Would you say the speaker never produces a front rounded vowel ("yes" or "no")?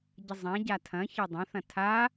yes